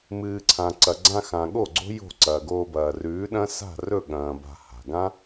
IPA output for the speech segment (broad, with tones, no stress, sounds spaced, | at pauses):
m ɨː˨ ǀʰ ã˨ ǀ ɐ˨ ɡ͡ǀ ã˧ x ã˨ ɠ o˦˨ ɡ͡ǀ o̤˦ j o̤˦˨ ǀ ɐː˨ ɡ oː˧ b ɐː˨ r ʉː˨˦ ɗ ɐ̃˦ s a̤˦˨ r ɵ˦˨ ɠ ɐ̃ː˨ b a̤˧ h a̤˨ ɡ ã˦